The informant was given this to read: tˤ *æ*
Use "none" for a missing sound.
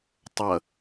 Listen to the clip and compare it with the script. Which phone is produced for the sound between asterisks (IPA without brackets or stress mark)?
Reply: ɐ